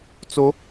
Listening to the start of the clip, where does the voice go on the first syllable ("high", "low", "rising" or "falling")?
rising